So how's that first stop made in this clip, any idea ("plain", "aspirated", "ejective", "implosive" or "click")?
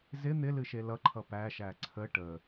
click